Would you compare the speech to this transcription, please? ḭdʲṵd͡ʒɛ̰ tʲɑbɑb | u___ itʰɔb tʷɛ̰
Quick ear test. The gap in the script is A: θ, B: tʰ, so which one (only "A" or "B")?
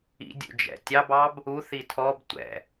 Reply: A